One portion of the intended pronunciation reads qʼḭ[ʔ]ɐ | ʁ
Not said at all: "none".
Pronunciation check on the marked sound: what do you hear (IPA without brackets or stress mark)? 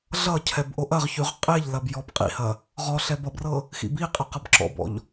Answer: h